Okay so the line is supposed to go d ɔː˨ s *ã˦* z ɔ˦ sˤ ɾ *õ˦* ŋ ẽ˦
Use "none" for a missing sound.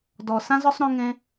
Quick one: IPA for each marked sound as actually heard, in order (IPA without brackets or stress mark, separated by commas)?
ã˦, õ˦